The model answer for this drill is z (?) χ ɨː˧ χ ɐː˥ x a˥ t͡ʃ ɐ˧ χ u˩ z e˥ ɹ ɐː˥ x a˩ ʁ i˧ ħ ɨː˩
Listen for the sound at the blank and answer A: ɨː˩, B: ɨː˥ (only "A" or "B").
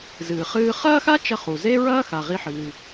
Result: A